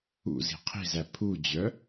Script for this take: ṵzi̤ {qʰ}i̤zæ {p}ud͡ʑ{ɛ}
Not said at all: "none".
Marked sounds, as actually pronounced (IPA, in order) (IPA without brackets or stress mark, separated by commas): qʰ, pʰ, œ